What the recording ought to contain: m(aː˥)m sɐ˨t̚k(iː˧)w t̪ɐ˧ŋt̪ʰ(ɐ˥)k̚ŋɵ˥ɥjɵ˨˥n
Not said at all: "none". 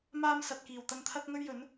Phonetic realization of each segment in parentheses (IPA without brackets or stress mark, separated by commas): aː˥, iː˨˩, ɐ˥